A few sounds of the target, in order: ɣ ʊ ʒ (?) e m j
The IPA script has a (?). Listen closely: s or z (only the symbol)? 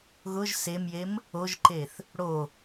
s